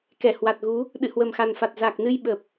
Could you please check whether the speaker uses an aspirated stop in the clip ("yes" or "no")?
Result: no